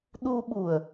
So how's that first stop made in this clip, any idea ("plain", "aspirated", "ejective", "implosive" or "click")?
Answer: implosive